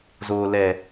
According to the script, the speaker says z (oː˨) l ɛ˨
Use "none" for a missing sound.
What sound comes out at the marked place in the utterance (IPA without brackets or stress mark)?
oː˨